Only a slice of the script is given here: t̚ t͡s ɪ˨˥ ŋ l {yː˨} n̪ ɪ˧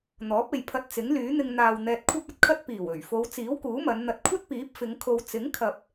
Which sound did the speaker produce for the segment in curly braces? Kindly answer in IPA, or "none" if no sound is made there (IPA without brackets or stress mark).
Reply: yː˨˥